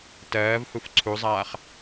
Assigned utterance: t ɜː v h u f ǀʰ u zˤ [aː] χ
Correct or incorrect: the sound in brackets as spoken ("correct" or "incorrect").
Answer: correct